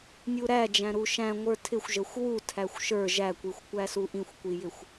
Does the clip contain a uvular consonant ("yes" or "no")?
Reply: no